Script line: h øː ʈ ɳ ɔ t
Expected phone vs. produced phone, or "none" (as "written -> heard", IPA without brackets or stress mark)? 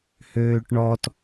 none